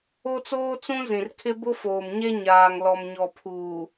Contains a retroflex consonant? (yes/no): no